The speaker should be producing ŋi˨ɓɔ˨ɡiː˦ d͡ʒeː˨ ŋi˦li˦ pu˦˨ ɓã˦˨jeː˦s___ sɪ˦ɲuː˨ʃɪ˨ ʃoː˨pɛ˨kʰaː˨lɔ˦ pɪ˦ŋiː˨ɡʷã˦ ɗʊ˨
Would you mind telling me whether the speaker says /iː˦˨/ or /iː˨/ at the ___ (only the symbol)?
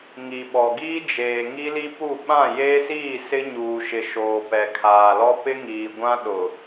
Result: iː˦˨